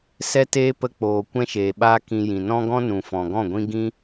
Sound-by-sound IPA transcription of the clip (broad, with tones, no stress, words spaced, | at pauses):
sɛ˦teː˦ pə˧ k͡poː˨ kʷɛ̃˦ʃeː˨ɓaː˦ kĩ˧jĩ˨ nɔ̃˦ɡɔ̃˦ nũ˨fɔ̃˨ɡɔ̃˦˨ɡʷĩ˦ ɡĩ˦